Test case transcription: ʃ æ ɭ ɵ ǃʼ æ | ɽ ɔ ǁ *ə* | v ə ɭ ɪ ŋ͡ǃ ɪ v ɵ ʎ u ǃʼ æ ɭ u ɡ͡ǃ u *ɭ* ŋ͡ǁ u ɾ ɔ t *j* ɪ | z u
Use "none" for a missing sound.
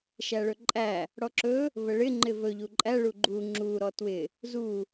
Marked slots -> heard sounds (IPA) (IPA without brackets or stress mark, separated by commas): ɵ, none, w